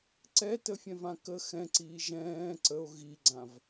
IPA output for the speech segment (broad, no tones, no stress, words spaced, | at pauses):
ǀɛtəfʲɛ̃vã kə xɛ̃ǀiː ʒɛ̃ː ǀəo̯ ɣiɡ͡ǀãv